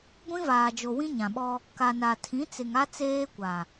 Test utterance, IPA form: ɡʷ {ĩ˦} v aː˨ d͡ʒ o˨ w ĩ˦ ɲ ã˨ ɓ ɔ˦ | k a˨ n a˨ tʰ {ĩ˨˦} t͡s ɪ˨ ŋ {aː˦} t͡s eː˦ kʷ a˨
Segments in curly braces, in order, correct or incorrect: correct, correct, incorrect

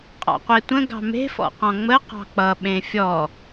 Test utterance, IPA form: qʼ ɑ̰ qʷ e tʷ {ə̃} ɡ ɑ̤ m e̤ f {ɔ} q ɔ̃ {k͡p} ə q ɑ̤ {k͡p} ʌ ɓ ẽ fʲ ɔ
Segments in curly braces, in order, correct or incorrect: correct, incorrect, incorrect, correct

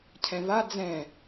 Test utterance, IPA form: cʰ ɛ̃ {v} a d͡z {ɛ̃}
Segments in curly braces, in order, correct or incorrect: correct, correct

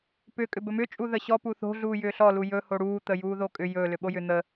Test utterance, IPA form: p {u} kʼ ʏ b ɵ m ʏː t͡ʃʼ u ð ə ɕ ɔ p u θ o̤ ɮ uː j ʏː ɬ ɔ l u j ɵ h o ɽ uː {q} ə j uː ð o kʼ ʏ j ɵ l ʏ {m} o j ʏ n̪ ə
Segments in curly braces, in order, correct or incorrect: incorrect, incorrect, incorrect

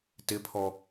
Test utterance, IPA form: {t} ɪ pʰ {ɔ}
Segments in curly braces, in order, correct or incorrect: correct, correct

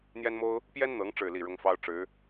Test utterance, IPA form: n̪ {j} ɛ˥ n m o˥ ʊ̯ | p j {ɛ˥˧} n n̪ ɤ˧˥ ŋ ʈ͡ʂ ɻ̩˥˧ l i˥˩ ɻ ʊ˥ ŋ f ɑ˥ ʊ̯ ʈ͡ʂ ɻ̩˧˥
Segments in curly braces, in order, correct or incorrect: correct, incorrect

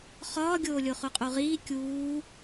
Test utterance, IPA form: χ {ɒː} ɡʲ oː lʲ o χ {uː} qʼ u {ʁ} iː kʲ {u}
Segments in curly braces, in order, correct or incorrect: correct, incorrect, correct, incorrect

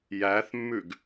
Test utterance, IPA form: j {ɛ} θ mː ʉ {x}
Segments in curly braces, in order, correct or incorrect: incorrect, incorrect

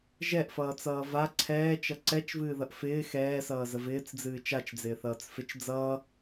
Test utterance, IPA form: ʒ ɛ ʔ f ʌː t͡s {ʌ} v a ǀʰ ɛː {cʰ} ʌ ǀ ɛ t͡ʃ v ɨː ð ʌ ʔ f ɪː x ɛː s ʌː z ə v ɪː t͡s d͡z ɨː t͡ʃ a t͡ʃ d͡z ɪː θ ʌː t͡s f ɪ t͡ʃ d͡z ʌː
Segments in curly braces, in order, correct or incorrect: incorrect, incorrect

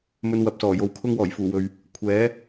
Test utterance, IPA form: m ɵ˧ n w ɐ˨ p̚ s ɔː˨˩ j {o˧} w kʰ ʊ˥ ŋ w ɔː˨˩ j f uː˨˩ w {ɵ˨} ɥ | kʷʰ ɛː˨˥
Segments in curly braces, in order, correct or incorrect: incorrect, correct

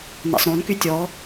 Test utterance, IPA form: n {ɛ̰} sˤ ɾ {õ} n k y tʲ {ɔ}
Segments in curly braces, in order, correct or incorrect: correct, correct, correct

